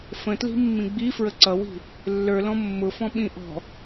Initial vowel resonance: nasal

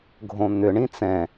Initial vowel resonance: nasal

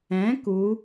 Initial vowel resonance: nasal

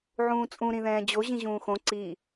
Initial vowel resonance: nasal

